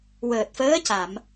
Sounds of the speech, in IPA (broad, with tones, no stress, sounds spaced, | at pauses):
w əː˨˩ t̚ f əː˧˥ c a˨˩˨ m